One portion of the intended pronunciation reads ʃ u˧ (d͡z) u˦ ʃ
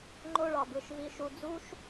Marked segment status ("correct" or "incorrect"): correct